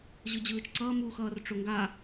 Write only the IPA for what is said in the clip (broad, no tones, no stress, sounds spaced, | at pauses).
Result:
ʑ ɯ d͡ʑ ɯː t͡ʃ ǀ ʌː m u x ʌː r ʈ͡ʂ o ŋ ɡ a